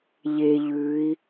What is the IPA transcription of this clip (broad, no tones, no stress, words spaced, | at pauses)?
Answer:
ʎe ʎʉi̯